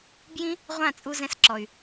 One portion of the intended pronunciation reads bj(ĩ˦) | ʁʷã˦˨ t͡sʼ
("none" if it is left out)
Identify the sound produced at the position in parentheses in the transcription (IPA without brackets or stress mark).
ĩ˦